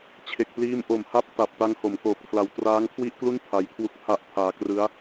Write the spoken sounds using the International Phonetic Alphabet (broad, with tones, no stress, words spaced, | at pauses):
t͡ɕʰe˨˩k̚pliː˦˥m ʔo˩˦mha˦˥p̚ ta˨˩p̚ ta˦˥ŋho˩˦m koː˨˩p̚kʰla˨˩w traː˦˥ŋkʰwi˥˩ʔklu˥˩n pʰa˦˥j kʰwu˦˥k̚pʰa˦˥ʔpʰaː˧ krɯ˦˥a̯